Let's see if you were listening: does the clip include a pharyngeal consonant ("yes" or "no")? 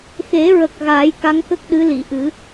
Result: no